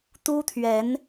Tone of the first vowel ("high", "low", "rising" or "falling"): high